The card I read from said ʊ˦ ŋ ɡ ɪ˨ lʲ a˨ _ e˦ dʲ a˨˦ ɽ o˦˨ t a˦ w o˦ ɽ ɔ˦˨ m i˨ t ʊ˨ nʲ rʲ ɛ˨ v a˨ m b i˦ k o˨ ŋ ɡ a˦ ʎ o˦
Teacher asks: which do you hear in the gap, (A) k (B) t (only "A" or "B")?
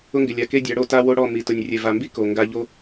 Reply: A